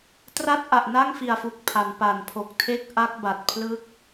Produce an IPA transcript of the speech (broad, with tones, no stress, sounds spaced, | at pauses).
t r a˥˩ t̚ ʔ a˨˩ ʔ n a˥˩ ŋ f i˨˩ a̯ f u˨˩ k̚ pʰ a˩˦ n p a˨˩ n pʰ o˨˩ k̚ tʰ e˥˩ k̚ ʔ a˦˥ k̚ b a˨˩ t̚ pʰ l ɯ˦˥ k̚